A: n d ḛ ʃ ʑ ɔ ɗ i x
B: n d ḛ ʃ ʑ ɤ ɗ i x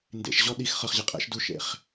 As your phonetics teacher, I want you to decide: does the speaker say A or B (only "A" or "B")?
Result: A